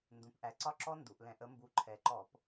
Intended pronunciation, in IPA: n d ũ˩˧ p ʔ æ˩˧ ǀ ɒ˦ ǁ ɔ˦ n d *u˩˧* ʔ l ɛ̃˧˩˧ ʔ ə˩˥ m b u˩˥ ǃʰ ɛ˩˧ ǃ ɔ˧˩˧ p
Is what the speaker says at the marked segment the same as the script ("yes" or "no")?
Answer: yes